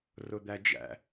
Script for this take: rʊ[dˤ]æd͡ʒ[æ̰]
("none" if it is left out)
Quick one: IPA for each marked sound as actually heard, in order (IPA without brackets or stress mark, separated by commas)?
d̪, æ̰